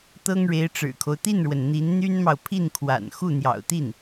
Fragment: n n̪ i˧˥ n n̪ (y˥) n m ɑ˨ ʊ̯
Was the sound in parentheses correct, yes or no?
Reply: yes